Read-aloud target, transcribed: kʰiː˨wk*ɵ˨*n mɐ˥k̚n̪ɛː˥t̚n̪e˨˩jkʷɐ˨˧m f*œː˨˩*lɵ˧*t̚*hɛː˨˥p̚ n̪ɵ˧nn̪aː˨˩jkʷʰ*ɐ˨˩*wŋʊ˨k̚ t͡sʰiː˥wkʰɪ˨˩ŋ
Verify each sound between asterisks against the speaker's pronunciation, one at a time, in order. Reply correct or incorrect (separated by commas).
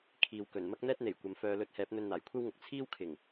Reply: incorrect, incorrect, correct, incorrect